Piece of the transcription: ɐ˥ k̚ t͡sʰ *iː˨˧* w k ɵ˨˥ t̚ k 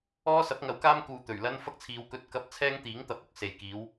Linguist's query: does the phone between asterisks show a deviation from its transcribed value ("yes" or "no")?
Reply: no